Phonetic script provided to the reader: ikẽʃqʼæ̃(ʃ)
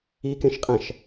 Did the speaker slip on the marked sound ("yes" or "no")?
no